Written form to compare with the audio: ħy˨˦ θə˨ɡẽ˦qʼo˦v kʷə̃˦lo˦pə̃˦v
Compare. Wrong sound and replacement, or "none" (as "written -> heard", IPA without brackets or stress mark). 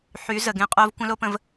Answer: θ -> z